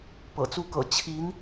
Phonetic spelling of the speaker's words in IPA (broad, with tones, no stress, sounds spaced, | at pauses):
p ɤ̰˨˩ t͡s u˥˩ k ɤ̰˨˩ t͡ɕʰ i˧˥ n